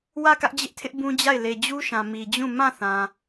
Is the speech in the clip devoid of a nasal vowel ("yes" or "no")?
no